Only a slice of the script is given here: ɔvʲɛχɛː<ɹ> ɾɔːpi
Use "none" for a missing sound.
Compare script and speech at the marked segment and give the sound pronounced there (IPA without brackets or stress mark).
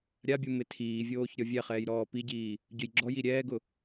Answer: j